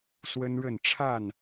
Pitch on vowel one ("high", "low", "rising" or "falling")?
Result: high